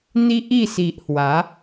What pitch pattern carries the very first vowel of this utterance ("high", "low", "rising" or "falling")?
high